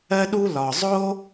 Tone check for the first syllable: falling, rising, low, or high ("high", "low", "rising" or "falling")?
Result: high